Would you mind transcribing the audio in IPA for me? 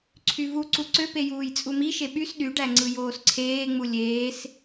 ǀʰ y v u ǀ u ǀ ø p e j uː j t͡sʼ u m i ʃ e ɓ y s ɗ y ɖ æ ŋ͡ǀ ɯ j oː s ǀʰ eː ŋ͡m u lʲ eː s

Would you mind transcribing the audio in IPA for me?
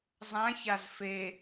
zˤ ã ç a z f e

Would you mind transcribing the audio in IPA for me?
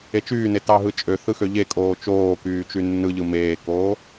e t͡ʃ yː n e t ɑ ɦ ɯ t͡ʃʼ ø θ ɯ x ø ʎ e kʼ oː t͡ʃ oː k yː t͡ʃ y nː ɯ ʎ ɯ m eː k oː

